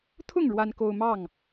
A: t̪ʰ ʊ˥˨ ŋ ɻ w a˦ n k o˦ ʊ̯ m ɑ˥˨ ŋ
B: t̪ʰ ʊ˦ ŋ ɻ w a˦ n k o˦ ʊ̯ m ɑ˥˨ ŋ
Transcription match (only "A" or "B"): A